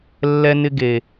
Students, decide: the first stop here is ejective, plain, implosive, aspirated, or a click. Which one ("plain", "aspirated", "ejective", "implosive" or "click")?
plain